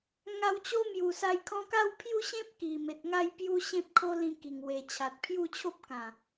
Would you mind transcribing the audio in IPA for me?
ŋ a˧ w t͡ɕ o˦ m j u˨˩ s a˧ j kʰ ɔ̃˧ k a˥˧ w pʰ j u˥˧ ɕ ẽ˦ p̚ k i˨˩ m e˨ t̚ ŋ a˥˧ j p j u˦ ɕ ẽ˦ p̚ kʰ o˦ l ĩ˧ k i˨˩ ŋ w e˨˩ t͡ɕʰ a˨ t̚ pʰ j u˥˧ t͡ɕʰ o˦ p̚ k ã˨˩

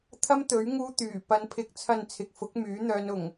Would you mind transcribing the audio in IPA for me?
t̪ʰ ɐ˧ m t̪ ɵ˨˥ ɥ ŋ uː˧ t̪ yː˨˩ p ɐ˨˧ n pʰ ɪ˨ k̚ t͡sʰ ɐ˨ n t͡sʰ ɪ˨ k̚ f ʊ˨˥ k̚ m yː˨˥ n̪ œː˧ n ʊ˨˩ ŋ

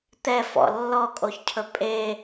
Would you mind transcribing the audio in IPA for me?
t̪ ɛ f ɔ̰ lː ɔ kʼ o ç cʰ ɵ pʼ e

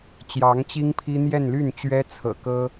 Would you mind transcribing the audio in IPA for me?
t͡ɕ j ɑ˧˥ ŋ t͡ɕ i˥ ŋ pʰ i˥ n̪ j ɛ˥˧ n l y˥˩ n t͡ɕ ɥ ɛ˥ t͡sʰ ɤ̰˨˩ k ɤ˥

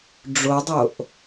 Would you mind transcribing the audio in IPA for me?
ɖ͡ʐ o dˤ o ʔ

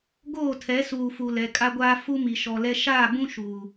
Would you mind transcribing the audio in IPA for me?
ɡ oː˦˨ tʰ ɛ˨˦ s uː˨ f u˨ l ɛ˨ kʼ a˦ ɡʷ aː˦ f u˦ m i˨ ʃ ɔ˨ l ɛ˦ ʃ aː˦˨ b ũ˦ ʃ u˨

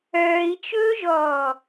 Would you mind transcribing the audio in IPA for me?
œː i̯ t͡ʃ ɵː ʒ ɔː

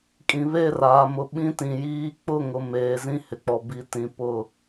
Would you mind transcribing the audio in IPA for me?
kʼ ĩ˨ β e˦˨ r aː˨ m ʊ˨ ɓ ĩ˦ t ĩ˨ j iː˦ k͡p ʊ˦˨ ŋ ʊ˨ m eː˨ z ĩ˦ h ɪ˨ k͡p ɔ˨ b i˨˦ t ĩ˨ p ʊ˦˨

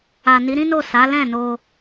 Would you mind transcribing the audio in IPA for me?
a˨ n i˨˦ ɾ ĩ˦ n o˦˨ s a˨˦ l ɛ̃˦˨ n o˧

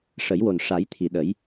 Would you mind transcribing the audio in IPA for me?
ʂ ə˨˩˦ j w o˨˩ n ʂ a˨˩˦ j t̪ʰ i˨˩˨ ɗ ə˨˩˦ j

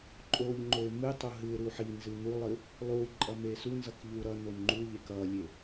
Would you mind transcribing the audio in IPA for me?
ǃʼ o ʎ ŋ͡ǃ o ɪ̯ m ɨ tˤ o ɦ ɨ ɪ̯ ɾ u ħ i n z ɨ n̪ u lˠ ɨ | lˠ u ǃʼ ʌ m e s u n z ʌ k ʎ u ɾ ʌ n o n ŋ͡ǃ u ʎ e k ʌ lʲ e

